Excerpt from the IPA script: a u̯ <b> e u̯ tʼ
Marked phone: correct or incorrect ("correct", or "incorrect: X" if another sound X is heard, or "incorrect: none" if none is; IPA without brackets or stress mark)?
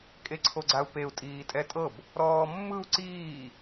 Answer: incorrect: p